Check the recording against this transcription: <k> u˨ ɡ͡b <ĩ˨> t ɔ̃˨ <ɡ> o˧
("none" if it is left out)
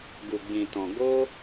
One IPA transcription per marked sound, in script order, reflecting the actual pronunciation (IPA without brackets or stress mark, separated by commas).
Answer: ɡ, ĩ˨, ɡ